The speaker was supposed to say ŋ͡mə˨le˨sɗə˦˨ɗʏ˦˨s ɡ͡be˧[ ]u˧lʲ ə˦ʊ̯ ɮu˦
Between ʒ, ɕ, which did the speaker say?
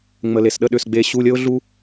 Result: ɕ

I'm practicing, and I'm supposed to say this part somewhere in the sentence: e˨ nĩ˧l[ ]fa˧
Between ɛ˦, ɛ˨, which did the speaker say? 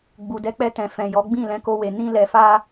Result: ɛ˨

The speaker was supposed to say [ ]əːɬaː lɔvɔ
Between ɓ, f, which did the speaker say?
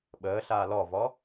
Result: ɓ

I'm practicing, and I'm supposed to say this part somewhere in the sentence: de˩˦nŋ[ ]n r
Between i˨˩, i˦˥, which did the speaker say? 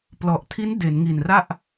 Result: i˨˩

